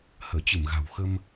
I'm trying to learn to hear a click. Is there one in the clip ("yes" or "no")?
no